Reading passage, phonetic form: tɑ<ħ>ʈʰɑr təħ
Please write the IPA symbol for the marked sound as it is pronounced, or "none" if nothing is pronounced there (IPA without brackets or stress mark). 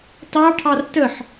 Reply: none